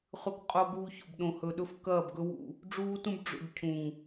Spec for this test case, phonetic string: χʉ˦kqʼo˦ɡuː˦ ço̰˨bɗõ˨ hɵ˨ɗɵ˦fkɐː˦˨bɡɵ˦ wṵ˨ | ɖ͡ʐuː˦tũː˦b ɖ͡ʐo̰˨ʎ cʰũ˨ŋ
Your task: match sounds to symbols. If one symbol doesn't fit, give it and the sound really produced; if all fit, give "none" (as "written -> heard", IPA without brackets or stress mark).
ũː˦ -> ũ˦